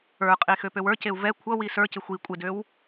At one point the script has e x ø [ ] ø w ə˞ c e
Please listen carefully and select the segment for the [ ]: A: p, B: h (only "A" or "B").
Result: A